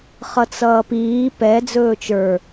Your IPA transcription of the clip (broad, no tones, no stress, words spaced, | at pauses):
χʌt͡sʌːpiː pɛ d͡zɵːt͡ʃə˞